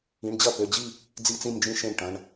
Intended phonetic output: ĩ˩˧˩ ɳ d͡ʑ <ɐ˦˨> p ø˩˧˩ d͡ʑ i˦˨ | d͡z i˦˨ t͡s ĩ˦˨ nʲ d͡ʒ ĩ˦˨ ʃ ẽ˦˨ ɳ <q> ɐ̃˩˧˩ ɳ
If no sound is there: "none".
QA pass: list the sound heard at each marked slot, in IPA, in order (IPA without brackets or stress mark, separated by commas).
ɐ˦˨, ʈ